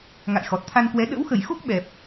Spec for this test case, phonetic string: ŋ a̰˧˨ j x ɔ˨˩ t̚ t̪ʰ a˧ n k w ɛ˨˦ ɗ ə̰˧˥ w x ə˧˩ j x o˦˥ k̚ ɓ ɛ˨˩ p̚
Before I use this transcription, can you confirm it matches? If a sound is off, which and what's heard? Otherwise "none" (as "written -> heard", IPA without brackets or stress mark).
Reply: none